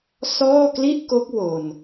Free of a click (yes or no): yes